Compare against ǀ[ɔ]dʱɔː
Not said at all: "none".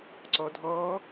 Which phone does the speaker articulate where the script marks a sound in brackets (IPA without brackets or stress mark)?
ɔ